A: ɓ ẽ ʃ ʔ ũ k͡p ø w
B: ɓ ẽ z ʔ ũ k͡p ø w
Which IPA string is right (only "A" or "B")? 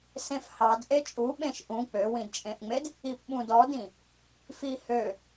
A